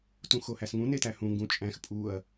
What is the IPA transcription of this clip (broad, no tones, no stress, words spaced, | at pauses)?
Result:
tũxohæsŋũ netæhũ ŋɡũt͡ʃʼæ̃x pʼuɐ̯